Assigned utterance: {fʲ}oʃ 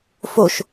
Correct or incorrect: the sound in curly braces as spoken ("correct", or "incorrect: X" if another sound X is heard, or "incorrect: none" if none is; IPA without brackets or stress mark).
incorrect: f